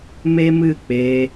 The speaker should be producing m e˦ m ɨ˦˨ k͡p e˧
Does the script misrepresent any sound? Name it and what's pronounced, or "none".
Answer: none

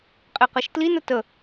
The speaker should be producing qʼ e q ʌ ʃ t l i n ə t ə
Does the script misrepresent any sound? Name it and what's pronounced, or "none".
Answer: none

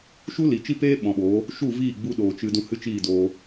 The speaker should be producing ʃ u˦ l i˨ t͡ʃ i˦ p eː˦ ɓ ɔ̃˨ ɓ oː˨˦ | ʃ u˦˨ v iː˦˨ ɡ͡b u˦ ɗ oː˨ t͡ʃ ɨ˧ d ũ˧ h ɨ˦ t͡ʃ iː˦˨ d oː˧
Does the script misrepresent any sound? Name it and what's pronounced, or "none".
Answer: none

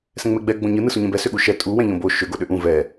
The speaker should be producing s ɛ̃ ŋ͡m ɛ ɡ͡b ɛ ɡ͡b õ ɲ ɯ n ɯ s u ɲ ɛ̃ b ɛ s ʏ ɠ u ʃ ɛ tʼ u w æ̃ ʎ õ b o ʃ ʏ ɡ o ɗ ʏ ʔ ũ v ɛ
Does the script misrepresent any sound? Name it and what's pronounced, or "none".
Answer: æ̃ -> ɛ̃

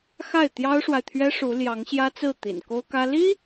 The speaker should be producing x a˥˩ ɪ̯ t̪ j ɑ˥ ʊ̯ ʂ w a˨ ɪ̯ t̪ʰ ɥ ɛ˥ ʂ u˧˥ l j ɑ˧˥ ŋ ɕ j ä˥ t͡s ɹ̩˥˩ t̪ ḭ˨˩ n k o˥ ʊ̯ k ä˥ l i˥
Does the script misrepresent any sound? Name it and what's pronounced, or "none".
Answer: none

